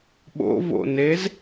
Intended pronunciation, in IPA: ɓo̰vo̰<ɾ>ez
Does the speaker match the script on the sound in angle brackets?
no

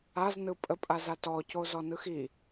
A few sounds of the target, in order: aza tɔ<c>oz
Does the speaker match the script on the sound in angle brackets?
yes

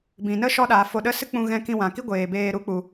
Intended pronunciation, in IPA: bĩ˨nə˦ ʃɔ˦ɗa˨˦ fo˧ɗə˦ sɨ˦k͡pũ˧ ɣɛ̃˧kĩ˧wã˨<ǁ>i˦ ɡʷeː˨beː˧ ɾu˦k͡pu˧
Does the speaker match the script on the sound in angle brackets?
no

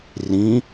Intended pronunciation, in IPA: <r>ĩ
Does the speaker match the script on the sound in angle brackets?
yes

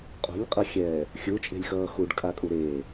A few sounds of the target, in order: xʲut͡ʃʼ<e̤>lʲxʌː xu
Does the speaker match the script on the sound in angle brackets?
yes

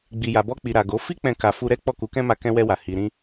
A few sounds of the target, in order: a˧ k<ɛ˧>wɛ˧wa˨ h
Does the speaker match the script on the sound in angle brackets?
no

